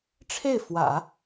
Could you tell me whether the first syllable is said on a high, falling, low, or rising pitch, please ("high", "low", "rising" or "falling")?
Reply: falling